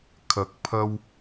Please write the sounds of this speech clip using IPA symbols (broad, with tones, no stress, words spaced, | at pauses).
kʰɐ˧k̚pʰɐ˥w